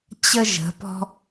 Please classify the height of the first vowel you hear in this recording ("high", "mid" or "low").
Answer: mid